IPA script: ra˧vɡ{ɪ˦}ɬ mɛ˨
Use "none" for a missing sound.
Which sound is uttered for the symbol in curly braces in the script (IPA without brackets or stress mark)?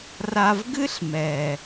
ɨ˦